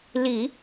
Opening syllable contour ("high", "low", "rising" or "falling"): low